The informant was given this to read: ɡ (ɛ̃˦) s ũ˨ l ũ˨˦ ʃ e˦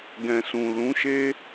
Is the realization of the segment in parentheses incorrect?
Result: yes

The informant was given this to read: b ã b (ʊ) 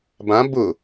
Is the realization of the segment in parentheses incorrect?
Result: no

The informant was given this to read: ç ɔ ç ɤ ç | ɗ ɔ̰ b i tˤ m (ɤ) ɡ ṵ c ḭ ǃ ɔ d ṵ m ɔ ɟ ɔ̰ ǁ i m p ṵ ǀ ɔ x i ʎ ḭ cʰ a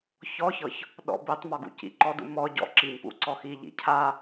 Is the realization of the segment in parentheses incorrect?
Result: yes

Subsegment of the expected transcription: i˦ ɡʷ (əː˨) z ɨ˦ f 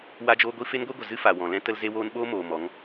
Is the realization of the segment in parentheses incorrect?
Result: yes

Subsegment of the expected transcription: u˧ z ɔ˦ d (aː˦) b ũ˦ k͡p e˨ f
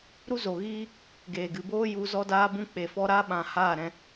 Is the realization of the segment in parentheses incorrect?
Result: no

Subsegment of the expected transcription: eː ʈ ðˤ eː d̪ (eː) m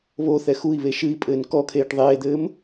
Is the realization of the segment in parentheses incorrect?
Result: yes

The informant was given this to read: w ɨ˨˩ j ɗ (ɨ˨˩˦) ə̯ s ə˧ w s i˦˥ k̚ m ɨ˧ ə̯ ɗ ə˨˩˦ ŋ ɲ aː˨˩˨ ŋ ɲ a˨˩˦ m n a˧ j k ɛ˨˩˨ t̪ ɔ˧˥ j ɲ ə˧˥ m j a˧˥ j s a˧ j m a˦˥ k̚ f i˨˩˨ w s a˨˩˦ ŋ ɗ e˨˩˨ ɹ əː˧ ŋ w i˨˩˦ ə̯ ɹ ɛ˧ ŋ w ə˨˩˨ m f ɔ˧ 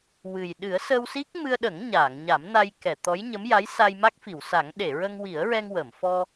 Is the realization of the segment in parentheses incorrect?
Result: no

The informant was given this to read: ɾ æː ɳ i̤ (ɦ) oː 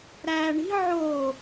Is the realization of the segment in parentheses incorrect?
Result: yes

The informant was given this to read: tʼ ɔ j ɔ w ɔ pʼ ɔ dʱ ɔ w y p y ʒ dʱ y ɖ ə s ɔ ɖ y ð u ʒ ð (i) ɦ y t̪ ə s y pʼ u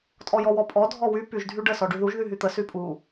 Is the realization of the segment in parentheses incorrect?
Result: yes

